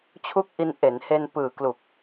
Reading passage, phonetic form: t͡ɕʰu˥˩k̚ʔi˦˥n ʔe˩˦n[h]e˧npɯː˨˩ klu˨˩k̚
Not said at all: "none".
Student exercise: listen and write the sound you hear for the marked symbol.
h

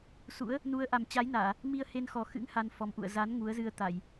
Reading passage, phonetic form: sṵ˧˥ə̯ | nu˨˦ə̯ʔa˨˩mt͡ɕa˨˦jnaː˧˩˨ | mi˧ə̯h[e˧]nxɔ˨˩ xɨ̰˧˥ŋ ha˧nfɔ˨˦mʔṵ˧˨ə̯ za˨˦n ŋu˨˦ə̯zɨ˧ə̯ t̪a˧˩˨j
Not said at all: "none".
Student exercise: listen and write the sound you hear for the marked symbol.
e˧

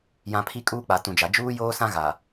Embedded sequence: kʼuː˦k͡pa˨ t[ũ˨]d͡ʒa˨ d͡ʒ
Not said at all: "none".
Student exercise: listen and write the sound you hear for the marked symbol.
ũ˨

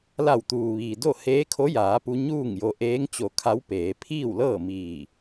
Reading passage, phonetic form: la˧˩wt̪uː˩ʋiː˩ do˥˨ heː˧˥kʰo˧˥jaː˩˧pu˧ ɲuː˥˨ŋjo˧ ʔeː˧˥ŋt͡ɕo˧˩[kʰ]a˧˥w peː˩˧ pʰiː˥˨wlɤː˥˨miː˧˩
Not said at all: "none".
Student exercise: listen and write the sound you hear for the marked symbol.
kʰ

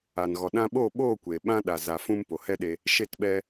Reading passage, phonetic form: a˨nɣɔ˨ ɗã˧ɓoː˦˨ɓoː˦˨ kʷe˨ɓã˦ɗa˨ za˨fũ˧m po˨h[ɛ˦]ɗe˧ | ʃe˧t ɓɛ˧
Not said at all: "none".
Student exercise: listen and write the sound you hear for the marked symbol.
ɛ˦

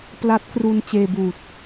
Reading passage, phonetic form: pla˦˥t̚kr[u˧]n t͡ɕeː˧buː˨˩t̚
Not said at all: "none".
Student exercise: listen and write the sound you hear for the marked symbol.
u˧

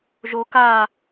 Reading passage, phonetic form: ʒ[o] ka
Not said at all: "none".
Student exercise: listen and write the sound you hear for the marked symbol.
o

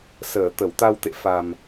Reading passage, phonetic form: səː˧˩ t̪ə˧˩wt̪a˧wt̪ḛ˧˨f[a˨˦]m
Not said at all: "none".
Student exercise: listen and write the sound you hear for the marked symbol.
a˨˩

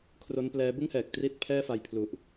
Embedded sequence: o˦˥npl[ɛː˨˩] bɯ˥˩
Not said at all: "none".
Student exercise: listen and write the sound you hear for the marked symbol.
ɛː˦˥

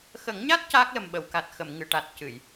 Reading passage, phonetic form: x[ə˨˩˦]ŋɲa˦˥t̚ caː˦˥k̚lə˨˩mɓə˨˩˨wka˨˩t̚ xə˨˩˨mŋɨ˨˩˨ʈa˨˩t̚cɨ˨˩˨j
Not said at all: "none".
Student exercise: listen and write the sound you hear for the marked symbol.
ə˨˩˦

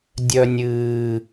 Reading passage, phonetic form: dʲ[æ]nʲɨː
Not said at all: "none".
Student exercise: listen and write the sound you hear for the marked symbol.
œ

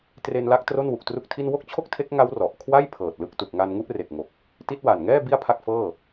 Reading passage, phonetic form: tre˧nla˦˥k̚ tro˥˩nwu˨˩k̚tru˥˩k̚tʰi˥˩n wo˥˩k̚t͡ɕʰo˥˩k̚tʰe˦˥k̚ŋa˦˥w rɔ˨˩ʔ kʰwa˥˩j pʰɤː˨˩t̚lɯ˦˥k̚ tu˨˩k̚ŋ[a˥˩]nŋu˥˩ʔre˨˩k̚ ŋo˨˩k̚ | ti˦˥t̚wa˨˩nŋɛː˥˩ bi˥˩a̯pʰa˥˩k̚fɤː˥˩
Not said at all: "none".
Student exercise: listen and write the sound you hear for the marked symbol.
a˧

